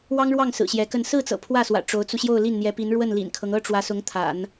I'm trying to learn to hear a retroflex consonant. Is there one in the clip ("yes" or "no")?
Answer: yes